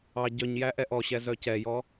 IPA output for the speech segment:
ɑ ɟœɲjæ ʔɛʔɔɕɛ zœcɛjɔ

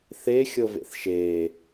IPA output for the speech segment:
θe xʲɤvḛθʃeː

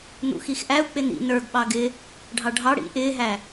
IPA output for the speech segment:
n̪ṵxixʔæu̯ k͡pɪnḭ nə˞ɡɓɑ ɡɪ | ɖʱɑɖʱɑ ɽḭ ʔɪːɦæ

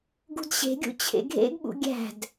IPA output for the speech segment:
ɡṳdɕe̤ɡʲṵ t͡ɕʰḛɡʱḛɡɓṵ ɡʲæ̤d

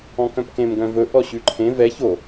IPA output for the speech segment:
ɔ̃kœ̃pkẽm ɡœ̃vɵ ʔɔɕʉǃʰẽ vɛ ço

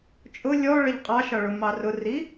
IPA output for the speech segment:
t͡ʃʼʊ lʲɔɭəʎ qʼɑʃɒɭʊ mɑrʊri

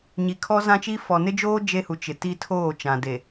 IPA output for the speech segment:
ɲi˨kʰɔ˦zã˦t͡ʃi˦ fɔ˨ nɪ˦d͡ʒoː˦ d͡ʒe˦hu˨ t͡ʃɪ˨ ti˦ tʰoː˦˨t͡ʃã˨de˨

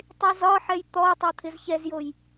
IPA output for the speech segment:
tˤizɒħɛj t̪ɔtˤo t̪ʰɪzçɛzjoj

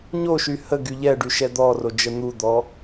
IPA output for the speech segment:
ɲoʃy hə ɡyʎɛɖy ʃɛd̪ɔro d͡ʒən̪ud̪ɔ

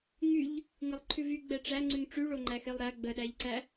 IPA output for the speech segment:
ŋyʎ | ŋɪlˠǃʰʉvy ɡ͡bɛʈ͡ʂæ ŋ͡ǀʉŋʈ͡ʂyɭo ŋ͡ǃæxelˠɾæ ɡ͡bəɗæʎǀæ

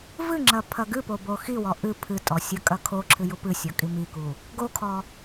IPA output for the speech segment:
vɨŋ͡ǁɐ pʰɐɡɨpo boxiwɔ ʔɨ pʰɨtʼɔ sʲɐkʼɐkʰoǁʰɨ jupɨsʲɔ kʼimiku | ɡokʰɔ

